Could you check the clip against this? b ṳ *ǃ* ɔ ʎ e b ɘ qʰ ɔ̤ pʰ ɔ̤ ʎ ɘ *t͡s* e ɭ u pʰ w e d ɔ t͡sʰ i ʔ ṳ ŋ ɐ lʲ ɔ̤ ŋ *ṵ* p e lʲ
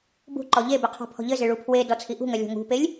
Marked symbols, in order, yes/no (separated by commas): yes, no, no